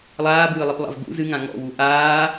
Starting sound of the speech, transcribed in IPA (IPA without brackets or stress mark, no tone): lˠ